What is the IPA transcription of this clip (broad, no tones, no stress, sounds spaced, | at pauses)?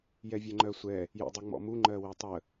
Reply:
j ɛ vʲ ɛ ŋ͡ǃ ɜ sʷ ɛ | j ɔ̰ dˤ ə ŋ͡m ɔ̰ m u ŋ͡ǃ ɜ w e tˤ ə